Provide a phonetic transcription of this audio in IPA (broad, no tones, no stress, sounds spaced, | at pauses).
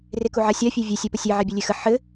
r e k u ʕ a sʲ a fʲ e vʲ e sʲ ɛ p ə sʲ e ʕ ɛ bʲ ɘ lʲ e x ə ħ ɘ